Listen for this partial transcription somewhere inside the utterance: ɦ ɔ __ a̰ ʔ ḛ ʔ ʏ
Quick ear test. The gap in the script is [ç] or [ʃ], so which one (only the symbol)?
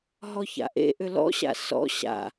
ç